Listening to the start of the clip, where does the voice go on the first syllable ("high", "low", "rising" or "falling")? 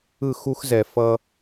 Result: falling